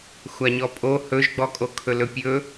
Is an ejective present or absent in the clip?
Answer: present